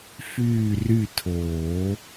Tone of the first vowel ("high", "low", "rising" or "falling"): falling